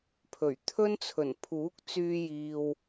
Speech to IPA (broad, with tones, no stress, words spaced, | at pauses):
pʰɵ˨˩ɥ t̪ʰɵ˥nt͡sʰɵ˨˩n pʰuː˨˥k̚ t͡syː˧jiː˨w